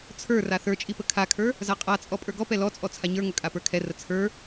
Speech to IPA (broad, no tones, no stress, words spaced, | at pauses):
t͡sʰə˞ raθə˞t͡ʃʼipə kʰakʰə˞ | zaqʼat͡sʼɔ pʼə˞ɡɔpɛ lɔt͡sʼɔ t͡sʰaɲə˞ŋɵkʼa pə˞kʰɛrə t͡sʰə˞